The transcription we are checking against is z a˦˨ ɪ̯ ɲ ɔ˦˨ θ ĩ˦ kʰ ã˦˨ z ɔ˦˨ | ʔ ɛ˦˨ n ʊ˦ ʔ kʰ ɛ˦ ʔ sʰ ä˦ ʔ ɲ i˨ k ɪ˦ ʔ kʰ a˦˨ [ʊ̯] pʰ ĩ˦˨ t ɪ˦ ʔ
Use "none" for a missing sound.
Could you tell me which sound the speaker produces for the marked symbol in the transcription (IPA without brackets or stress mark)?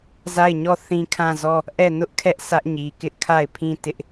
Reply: ɪ̯